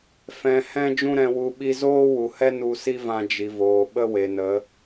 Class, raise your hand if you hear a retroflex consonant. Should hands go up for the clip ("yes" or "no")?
no